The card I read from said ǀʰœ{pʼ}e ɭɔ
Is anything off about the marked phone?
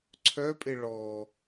no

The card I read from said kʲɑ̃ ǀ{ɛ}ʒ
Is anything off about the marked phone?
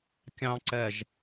no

